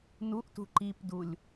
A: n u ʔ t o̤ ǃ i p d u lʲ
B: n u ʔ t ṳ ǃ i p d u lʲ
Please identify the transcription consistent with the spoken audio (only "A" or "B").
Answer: B